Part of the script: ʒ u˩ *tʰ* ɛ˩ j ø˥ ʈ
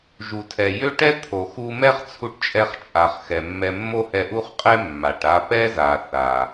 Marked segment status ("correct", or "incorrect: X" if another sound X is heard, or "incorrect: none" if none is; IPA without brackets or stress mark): correct